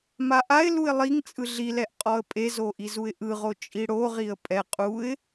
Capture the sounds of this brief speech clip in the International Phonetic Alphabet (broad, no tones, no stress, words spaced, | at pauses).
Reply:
maʔaɪ̯luɪ̯ lˠiŋt͡sʼɯ ɮilɛʔ qʼɔə̯pʼezo ʔizuɪ̯ʔɯʁo t͡ʃʼiɽoʁiə̯ pʼɛ qʼuɪ̯